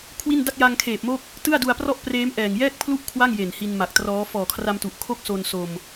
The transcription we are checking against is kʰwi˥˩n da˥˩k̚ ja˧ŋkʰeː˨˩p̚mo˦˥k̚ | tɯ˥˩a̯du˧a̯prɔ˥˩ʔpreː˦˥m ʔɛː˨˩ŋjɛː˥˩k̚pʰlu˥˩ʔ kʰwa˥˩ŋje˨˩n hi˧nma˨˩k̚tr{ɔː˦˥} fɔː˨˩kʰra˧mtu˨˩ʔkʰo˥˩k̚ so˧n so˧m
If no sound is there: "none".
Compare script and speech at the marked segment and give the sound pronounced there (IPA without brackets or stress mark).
ɔː˦˥